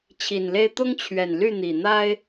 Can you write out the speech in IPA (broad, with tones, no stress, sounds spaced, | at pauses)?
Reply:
t͡ɕʰ i˨˩ n l e˥ ɪ̯ t̪ ʊ˥ ŋ t͡ɕʰ ɥ ɛ˨˩ n l y˥˩ n̪ i˨˩ n̪ a˥ ɪ̯